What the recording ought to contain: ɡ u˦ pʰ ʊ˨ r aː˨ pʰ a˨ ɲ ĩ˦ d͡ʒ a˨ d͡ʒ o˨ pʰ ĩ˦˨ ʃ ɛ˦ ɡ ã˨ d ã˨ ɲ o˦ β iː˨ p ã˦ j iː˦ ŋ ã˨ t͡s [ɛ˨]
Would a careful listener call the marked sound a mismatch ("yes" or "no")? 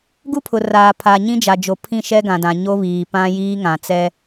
yes